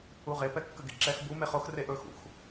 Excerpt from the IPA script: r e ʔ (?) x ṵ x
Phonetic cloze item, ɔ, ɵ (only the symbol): ɵ